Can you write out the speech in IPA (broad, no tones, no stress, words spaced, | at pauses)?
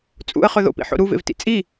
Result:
t͡sʼṵə̯χɵ ðo̰pḭħo̰ ɾuvḛvtḭ t͡sʼi